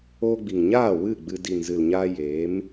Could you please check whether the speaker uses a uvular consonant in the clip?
no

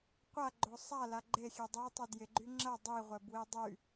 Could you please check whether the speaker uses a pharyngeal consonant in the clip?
no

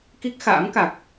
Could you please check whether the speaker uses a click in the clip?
no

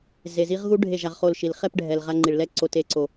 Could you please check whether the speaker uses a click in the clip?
yes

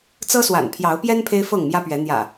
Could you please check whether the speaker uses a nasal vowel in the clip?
no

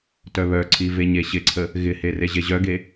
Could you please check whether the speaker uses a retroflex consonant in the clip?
no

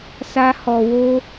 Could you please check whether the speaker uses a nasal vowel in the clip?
no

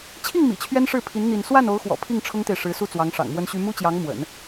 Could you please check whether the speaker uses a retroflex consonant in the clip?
yes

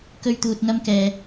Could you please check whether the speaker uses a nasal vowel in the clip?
no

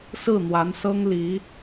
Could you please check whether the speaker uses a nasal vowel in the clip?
no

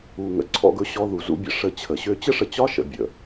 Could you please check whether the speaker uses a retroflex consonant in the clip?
yes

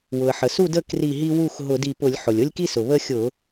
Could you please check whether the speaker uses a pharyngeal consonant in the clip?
yes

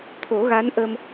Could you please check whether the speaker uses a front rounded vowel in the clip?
no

